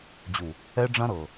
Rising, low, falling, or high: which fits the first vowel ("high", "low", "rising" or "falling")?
low